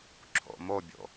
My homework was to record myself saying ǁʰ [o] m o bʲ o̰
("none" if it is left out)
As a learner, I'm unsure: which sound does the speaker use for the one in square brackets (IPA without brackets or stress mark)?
o̰